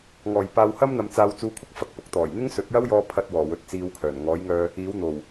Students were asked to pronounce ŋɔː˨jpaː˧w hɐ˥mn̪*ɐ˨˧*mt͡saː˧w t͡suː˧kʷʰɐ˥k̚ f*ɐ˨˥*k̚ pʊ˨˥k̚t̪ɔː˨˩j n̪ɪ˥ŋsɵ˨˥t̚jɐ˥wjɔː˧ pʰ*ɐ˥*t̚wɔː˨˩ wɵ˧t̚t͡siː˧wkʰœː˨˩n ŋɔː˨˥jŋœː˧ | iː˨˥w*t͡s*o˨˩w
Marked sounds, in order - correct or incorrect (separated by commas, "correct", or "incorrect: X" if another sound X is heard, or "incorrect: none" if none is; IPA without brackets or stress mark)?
correct, correct, incorrect: ɐ˧, incorrect: n̪